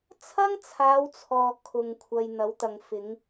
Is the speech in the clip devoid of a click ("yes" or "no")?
yes